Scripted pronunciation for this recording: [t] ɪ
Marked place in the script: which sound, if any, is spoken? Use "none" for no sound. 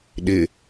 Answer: ɗ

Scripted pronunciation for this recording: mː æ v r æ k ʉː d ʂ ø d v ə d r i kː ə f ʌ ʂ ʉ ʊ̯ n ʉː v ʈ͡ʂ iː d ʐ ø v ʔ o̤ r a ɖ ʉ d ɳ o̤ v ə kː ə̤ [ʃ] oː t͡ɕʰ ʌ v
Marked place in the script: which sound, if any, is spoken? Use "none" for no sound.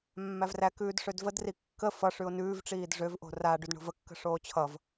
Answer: ʂ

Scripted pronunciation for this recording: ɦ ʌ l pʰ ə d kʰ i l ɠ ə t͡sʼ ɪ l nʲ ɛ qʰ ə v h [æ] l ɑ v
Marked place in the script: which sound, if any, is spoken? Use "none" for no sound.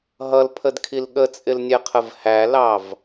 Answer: æ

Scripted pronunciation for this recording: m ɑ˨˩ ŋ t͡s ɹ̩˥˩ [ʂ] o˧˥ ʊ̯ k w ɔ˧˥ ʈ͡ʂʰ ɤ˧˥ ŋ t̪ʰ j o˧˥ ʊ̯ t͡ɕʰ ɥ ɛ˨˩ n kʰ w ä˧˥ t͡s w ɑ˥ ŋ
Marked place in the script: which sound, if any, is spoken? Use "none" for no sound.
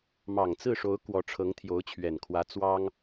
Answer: ʂ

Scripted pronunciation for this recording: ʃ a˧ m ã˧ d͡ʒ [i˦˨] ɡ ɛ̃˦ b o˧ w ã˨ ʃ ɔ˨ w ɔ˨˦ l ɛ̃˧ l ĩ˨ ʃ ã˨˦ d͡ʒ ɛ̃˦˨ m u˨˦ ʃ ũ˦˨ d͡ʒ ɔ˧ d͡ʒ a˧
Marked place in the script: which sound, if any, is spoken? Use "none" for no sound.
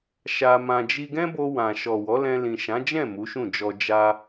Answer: i˧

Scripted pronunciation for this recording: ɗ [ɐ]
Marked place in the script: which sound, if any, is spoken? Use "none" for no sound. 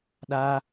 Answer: a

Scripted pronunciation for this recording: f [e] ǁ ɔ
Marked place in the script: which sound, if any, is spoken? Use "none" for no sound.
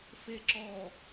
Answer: e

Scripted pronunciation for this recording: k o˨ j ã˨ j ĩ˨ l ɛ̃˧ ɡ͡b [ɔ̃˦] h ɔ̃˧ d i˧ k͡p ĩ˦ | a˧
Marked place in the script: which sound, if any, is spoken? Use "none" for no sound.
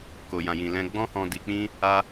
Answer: ɔ̃˦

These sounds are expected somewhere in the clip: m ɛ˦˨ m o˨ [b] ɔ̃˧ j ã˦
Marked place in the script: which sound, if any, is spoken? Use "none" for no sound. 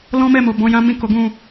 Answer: b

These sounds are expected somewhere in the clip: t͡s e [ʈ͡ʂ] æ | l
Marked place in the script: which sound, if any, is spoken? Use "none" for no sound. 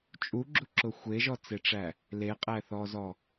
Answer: ʈ͡ʂ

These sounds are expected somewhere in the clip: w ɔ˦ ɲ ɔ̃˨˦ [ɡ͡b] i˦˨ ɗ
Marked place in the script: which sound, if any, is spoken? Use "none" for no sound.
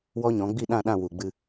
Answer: ɡ͡b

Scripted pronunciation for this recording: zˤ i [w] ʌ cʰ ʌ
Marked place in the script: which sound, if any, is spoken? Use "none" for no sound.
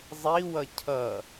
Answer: w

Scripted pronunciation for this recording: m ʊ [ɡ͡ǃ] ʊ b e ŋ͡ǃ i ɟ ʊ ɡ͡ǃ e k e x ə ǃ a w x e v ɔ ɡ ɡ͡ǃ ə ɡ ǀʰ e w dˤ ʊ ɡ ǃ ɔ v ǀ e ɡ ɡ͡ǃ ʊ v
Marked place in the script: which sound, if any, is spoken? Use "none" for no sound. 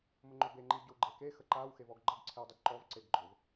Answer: ŋ͡ǃ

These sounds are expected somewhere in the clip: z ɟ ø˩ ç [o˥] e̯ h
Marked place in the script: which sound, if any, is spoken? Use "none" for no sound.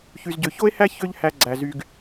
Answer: o˥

